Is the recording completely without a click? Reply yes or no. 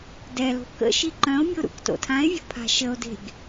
no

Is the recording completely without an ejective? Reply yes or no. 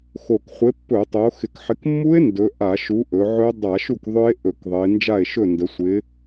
yes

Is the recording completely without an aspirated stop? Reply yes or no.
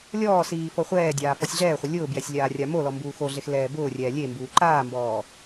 yes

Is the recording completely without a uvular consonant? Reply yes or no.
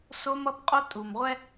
no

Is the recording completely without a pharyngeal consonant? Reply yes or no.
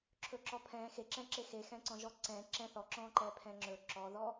yes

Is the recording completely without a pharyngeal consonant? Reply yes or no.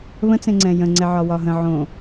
no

